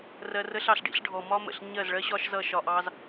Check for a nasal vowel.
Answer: absent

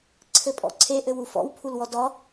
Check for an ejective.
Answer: present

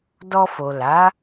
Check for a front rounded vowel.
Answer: absent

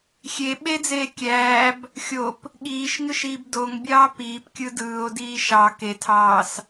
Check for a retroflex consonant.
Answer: absent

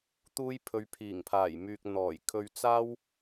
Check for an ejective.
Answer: absent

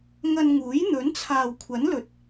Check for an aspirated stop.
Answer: present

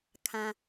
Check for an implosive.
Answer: absent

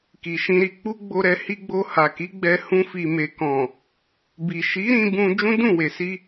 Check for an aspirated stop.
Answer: absent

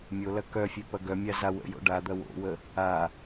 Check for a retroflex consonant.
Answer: present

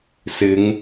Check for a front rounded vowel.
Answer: absent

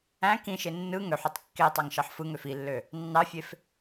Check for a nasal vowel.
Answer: present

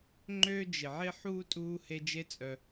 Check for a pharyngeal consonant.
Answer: present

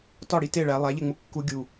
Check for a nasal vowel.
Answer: absent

